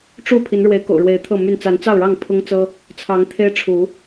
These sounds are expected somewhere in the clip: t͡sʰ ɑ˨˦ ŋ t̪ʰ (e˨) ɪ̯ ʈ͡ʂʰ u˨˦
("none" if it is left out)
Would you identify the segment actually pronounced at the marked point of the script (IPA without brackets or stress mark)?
e˦